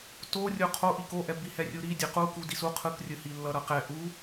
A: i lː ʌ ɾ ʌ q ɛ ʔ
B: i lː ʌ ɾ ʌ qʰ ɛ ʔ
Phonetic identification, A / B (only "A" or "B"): A